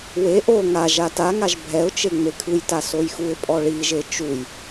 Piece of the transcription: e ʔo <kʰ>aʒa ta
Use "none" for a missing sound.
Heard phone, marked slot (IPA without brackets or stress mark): ŋ